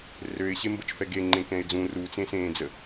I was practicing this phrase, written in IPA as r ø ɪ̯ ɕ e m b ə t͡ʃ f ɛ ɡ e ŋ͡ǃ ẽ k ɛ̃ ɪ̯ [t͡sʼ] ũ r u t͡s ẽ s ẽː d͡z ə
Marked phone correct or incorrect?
incorrect